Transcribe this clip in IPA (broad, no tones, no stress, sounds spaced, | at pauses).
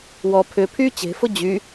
w ɔ pʰ ʏ pʰ y t͡ɕ e̤ f ʊ d͡ʑ y